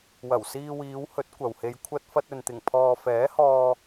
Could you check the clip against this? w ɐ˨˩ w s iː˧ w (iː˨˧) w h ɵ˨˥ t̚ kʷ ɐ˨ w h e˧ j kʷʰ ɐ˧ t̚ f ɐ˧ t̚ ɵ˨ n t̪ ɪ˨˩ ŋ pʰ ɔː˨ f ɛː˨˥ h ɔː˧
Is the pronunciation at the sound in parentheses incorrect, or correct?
correct